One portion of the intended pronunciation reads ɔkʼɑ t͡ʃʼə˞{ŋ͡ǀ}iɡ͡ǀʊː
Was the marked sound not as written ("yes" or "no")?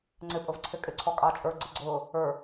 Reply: yes